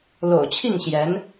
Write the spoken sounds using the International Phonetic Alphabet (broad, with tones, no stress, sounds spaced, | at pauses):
l o̰˨˩ ʊ̯ t͡ɕʰ i˥˩ ŋ ɕ j ɛ˧˥ n